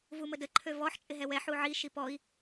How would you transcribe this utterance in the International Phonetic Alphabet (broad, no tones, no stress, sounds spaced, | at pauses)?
v u m ə d ə ǃʰ ø v ɔ ħ t͡ʃʼ ɪ ɦ ɛ w ɛ ħ u ʕ i ʃ i p ɔ i̯